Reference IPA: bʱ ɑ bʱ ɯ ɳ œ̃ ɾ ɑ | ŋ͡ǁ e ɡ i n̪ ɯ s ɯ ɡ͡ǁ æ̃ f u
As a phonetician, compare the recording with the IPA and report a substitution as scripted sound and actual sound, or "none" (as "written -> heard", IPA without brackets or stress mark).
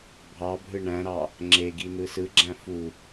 œ̃ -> æ̃